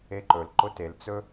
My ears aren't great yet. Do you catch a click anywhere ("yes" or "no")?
yes